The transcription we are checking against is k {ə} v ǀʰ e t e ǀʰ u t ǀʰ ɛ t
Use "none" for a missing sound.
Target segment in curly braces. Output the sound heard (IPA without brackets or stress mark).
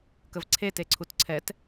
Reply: ə